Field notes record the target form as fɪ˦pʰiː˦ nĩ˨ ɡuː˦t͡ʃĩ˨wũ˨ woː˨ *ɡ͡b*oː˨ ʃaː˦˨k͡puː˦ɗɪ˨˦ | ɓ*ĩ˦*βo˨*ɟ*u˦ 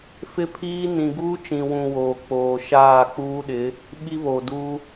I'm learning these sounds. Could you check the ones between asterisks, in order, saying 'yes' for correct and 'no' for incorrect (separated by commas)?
no, no, no